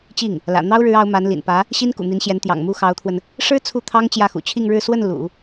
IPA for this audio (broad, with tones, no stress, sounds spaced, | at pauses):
t͡ɕ i˥˩ ŋ | l ä̰˨˩ n̪ ɑ˥ ʊ̯ ɻ ɻ̩˧˥ ɑ˧˥ ʊ̯ m a˧˥ n l ḭ˨˩ n p ä˧˥ | ɕ i˥ n k ṵ˨˩ n̪ i˧˥ n ɕ j ɛ˧˥ n t̪ j ɑ̰˨˩ ŋ m u˥˩ x ɑ˧˥ ʊ̯ t̪ʰ w ə˧ n | ʂ ɻ̩˥ t͡sʰ u˥˩ t̪ʰ ɑ˥ ŋ t͡ɕ j ä˥˩ x ṵ˨˩ t͡ɕʰ i˥˧ ŋ ɻ ɻ̩˥˧ s w ə˥˩ n l ṵ˨˩˦